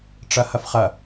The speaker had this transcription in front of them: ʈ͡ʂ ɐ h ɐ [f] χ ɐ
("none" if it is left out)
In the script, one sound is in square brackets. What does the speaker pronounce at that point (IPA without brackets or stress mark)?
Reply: f